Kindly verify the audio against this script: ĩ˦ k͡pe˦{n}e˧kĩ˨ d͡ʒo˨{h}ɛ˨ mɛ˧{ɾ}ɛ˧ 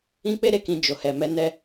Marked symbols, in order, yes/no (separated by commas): no, yes, no